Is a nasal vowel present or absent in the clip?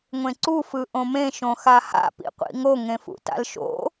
present